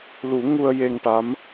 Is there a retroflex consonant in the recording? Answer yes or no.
yes